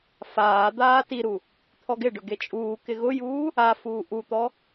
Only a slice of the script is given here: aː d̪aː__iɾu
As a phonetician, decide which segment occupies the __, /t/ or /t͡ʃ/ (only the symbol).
t